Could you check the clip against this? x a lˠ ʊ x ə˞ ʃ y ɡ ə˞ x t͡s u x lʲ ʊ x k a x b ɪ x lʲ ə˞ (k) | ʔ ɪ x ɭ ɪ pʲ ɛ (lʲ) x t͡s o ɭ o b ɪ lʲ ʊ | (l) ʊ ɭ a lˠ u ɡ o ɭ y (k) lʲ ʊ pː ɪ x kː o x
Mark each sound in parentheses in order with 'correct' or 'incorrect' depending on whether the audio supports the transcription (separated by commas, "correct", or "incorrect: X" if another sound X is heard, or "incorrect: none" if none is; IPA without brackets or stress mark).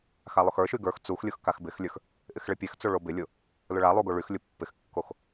incorrect: x, incorrect: none, correct, incorrect: x